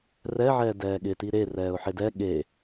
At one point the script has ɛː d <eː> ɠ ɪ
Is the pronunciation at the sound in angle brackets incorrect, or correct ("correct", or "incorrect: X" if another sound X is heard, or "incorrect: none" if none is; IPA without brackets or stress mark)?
incorrect: ɛː